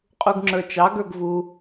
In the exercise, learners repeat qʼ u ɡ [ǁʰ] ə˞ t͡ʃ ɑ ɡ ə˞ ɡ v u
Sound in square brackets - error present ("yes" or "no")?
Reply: yes